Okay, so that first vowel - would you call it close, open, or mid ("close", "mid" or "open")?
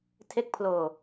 mid